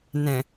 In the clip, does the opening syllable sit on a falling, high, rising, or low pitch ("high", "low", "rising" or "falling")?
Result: low